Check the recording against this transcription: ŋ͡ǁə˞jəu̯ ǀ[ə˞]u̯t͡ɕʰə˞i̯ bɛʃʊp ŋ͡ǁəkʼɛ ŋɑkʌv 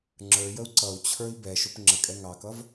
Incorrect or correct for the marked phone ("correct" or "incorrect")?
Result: incorrect